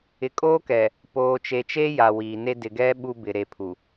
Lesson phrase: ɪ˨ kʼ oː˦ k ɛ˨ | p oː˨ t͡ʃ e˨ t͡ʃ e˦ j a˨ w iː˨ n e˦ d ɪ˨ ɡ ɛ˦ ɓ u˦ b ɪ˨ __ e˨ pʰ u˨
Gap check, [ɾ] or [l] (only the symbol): ɾ